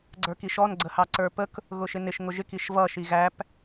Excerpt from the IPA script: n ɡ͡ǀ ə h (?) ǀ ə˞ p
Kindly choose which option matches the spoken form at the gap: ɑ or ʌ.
ɑ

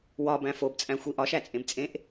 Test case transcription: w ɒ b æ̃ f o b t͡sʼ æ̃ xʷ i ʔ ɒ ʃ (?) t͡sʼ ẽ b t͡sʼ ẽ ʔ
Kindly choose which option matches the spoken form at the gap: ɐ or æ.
æ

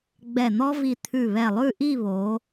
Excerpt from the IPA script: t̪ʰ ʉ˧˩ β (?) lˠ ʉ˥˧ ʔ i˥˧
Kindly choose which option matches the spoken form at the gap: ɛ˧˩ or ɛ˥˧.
ɛ˧˩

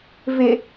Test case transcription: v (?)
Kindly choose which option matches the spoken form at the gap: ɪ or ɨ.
ɪ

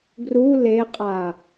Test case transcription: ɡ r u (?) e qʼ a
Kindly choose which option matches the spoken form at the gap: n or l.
l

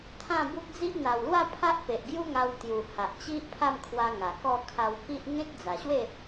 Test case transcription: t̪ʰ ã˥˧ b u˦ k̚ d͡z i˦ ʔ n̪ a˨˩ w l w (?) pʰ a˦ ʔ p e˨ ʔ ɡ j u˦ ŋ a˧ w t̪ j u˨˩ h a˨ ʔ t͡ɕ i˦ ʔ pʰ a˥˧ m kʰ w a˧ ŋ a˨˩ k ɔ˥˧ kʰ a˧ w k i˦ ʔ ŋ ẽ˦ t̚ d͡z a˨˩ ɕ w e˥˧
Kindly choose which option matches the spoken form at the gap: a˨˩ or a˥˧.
a˥˧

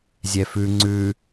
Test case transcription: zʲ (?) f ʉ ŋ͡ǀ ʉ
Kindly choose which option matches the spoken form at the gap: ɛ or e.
ɛ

